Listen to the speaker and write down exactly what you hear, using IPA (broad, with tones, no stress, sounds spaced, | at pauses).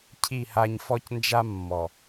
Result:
cʰ i˦˨ h a˦ ɲ f ɔ˦ c n d͡ʒ a˦ mː ɔ˨